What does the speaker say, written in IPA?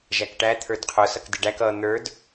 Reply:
ʒ æ k ʈ æ t̪ʰ ə˞ d qʰ ʊ s ʌ k d ɪ ɖ æ k ʌ n̪ ə˞ d

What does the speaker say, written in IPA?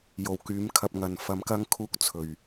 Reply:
j o˨˩ w k yː˨˥ m kʰ ɐ˧ p̚ ŋ ɐ˨ n f ɐ˧ m k ɐ˥ ŋ kʰ uː˥ k̚ t͡sʰ ɵ˨ ɥ

